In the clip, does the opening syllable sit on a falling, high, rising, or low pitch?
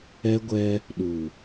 high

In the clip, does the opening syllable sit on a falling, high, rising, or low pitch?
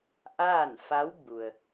falling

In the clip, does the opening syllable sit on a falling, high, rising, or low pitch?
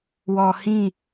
low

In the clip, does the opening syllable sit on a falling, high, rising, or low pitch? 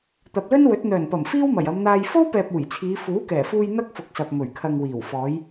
low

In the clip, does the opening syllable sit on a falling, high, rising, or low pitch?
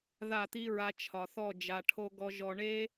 falling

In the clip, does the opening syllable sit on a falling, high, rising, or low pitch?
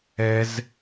high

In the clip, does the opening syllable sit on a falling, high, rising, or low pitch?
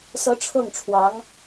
rising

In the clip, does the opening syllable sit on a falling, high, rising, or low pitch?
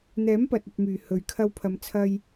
rising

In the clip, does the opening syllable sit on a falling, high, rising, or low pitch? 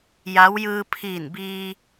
rising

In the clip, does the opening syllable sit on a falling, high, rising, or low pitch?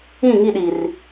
falling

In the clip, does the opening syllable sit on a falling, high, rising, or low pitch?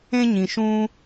high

